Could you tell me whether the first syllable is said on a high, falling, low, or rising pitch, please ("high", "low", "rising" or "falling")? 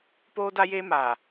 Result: high